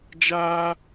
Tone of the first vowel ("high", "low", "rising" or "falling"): high